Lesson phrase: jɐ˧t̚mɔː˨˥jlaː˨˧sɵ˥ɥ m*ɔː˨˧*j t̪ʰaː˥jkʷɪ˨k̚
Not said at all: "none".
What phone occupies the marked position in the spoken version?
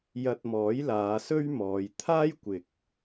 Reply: ɔː˨˧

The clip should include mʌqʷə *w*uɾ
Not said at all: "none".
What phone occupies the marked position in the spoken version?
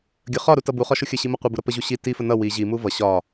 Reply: b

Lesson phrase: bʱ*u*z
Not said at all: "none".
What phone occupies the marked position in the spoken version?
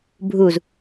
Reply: u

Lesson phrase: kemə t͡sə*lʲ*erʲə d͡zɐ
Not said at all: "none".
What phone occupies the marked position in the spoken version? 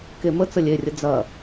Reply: lʲ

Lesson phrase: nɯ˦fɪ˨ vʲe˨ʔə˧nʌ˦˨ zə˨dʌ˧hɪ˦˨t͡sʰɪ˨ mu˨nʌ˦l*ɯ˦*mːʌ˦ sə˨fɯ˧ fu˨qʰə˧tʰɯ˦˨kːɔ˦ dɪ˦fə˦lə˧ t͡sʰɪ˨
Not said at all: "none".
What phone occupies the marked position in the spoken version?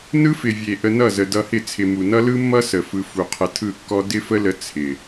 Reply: ɯ˦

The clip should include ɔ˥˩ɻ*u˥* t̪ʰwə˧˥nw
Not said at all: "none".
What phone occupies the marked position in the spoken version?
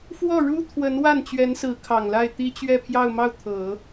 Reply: u˥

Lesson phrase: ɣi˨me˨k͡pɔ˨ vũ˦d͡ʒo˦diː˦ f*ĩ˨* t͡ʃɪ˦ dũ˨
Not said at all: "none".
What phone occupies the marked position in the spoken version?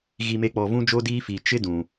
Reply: i˨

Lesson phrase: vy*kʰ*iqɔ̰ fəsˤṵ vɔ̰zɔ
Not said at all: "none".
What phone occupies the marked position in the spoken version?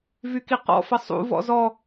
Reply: k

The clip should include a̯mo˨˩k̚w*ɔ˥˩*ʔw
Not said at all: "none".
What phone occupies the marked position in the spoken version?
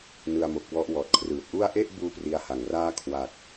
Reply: ɔ˥˩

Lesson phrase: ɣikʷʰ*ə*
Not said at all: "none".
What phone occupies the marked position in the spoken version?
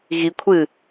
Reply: ɨ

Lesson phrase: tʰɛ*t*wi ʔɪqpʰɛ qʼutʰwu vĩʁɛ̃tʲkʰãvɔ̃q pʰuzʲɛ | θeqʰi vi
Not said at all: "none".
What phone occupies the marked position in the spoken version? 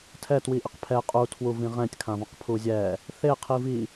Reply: t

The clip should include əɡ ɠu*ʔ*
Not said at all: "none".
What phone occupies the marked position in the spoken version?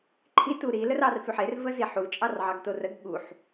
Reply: ħ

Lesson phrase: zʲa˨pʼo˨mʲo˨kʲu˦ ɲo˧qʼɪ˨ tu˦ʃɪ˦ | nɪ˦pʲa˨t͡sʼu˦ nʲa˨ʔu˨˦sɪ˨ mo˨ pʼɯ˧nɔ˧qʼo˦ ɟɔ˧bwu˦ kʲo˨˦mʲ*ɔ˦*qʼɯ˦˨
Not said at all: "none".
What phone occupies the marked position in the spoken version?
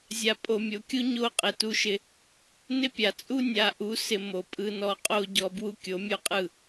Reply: o˦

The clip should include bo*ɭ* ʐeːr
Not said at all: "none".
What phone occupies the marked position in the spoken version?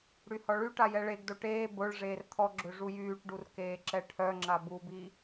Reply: ɭ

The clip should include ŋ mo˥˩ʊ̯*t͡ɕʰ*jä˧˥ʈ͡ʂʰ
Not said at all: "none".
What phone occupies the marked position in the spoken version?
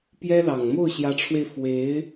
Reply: ɕ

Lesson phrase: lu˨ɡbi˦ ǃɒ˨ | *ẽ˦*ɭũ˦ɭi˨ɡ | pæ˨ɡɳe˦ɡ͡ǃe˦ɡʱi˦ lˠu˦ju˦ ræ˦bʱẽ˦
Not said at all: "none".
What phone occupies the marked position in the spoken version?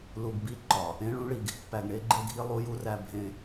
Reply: ẽ˦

